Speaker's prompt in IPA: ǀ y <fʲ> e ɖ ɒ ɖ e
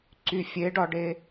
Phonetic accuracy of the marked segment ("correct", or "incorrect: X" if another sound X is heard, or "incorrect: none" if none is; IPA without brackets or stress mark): correct